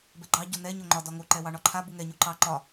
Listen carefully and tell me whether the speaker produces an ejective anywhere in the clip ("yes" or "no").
no